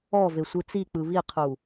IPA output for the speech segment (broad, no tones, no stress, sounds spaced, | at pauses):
ɔ v e sʷ ɯ t͡s i k͡p ɯ β i qʰ u